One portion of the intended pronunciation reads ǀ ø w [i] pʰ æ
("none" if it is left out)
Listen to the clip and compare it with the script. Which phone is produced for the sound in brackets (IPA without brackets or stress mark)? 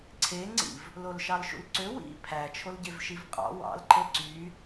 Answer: ḭ